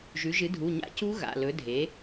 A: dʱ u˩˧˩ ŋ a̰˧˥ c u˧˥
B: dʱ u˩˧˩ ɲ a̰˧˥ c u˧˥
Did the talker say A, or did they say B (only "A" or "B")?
B